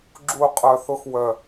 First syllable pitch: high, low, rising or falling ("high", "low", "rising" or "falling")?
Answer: falling